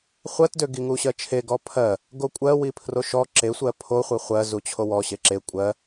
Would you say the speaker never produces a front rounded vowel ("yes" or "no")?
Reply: no